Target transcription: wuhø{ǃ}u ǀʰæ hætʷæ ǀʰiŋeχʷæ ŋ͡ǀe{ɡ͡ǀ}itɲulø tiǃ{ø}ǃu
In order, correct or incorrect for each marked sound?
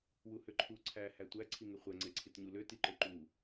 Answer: incorrect, incorrect, correct

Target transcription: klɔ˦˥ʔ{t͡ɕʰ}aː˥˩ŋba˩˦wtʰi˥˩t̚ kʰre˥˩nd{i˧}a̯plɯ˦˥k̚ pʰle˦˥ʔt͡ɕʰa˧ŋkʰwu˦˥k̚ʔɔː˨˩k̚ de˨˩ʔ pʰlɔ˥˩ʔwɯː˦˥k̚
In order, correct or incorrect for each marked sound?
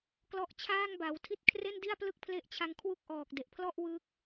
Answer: correct, incorrect

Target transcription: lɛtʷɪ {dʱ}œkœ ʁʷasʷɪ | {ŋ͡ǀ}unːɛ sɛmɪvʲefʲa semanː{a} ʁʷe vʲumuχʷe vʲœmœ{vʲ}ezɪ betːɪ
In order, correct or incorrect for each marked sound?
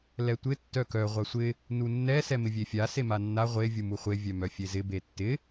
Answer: incorrect, incorrect, correct, incorrect

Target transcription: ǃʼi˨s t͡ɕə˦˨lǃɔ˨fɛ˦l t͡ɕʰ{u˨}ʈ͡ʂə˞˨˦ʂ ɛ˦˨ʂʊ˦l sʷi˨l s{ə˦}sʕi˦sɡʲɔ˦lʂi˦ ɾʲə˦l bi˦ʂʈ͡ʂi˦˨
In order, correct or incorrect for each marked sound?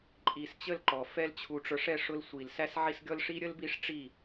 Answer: correct, incorrect

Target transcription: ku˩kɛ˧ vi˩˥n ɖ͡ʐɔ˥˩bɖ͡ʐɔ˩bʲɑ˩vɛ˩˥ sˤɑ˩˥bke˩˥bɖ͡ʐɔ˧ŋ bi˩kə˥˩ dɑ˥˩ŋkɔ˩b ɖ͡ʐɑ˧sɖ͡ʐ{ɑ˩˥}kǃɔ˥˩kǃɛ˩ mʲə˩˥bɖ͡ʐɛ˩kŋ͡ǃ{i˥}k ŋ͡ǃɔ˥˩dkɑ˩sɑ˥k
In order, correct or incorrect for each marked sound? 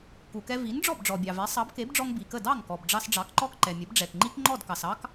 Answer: correct, correct

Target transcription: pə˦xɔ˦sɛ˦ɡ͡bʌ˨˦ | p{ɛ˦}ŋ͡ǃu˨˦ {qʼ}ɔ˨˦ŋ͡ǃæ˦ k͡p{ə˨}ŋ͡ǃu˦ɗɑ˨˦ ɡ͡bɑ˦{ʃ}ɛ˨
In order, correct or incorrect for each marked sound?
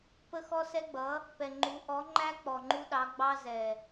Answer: incorrect, incorrect, incorrect, incorrect

